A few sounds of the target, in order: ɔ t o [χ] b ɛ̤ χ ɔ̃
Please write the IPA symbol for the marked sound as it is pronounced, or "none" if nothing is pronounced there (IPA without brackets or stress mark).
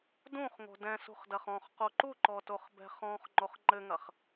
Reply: χ